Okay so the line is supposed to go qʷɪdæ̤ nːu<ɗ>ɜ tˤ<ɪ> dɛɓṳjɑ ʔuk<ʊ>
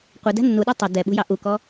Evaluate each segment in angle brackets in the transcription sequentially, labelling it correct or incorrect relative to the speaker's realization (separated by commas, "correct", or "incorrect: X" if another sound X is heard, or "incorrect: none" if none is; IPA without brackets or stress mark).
correct, correct, incorrect: ɔ